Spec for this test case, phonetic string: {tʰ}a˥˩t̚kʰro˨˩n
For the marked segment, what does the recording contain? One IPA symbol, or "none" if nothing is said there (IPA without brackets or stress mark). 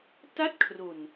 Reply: t